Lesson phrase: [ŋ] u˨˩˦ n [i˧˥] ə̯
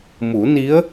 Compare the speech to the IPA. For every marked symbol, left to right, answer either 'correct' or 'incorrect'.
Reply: incorrect, correct

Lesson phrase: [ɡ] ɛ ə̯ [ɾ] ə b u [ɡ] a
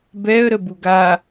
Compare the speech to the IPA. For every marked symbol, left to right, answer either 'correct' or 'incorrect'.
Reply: incorrect, correct, correct

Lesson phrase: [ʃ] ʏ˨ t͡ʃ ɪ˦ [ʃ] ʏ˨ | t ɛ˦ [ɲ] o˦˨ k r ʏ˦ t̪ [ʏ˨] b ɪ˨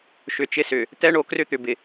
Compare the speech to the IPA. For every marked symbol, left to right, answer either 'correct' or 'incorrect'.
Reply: correct, incorrect, incorrect, correct

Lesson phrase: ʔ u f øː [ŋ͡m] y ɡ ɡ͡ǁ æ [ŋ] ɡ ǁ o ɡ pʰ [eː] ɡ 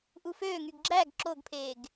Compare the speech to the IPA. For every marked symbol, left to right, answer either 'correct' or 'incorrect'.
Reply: incorrect, incorrect, correct

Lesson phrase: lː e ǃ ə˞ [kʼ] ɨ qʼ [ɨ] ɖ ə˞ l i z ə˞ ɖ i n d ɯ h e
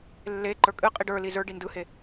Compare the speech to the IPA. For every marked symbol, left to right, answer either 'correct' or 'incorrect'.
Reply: correct, incorrect

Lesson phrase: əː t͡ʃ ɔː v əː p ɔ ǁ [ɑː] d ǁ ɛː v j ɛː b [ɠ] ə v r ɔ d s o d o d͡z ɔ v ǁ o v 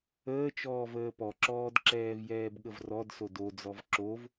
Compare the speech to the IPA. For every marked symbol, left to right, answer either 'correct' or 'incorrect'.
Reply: incorrect, correct

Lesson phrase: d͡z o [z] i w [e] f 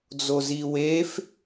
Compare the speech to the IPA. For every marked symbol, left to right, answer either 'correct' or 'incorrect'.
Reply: correct, correct

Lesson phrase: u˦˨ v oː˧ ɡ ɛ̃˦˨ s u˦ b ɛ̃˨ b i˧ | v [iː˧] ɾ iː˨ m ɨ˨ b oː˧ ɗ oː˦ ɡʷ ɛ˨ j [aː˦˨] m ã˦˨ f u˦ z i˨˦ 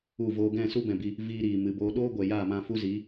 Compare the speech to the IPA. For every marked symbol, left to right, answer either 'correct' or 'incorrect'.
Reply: correct, correct

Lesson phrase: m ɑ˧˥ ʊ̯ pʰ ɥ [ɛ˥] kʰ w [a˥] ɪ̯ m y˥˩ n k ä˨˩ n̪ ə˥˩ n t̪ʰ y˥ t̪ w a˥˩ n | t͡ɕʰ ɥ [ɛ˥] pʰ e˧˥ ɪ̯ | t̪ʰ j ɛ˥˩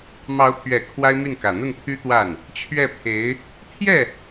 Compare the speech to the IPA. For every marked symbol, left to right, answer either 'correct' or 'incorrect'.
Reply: incorrect, correct, incorrect

